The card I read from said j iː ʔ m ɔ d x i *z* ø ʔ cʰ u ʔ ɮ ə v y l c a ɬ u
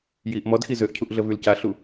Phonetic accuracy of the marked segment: correct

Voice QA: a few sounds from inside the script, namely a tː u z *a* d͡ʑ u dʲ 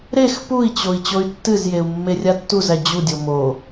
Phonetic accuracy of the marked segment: incorrect: æ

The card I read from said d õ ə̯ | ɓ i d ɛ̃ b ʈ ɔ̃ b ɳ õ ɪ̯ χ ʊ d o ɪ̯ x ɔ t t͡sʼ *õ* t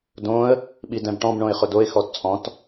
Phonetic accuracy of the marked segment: incorrect: ɔ̃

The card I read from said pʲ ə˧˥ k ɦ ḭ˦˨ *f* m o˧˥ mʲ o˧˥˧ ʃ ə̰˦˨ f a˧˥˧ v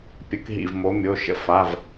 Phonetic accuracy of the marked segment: incorrect: v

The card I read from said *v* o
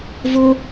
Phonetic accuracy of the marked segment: correct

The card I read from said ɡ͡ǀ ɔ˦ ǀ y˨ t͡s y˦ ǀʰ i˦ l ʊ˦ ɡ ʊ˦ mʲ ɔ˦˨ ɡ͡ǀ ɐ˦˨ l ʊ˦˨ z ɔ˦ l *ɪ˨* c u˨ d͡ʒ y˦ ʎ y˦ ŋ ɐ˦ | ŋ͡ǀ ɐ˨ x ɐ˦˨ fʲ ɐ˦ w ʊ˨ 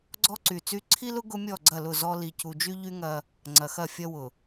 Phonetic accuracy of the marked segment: incorrect: i˨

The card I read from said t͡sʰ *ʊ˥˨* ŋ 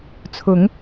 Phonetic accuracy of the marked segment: incorrect: ʊ˨˦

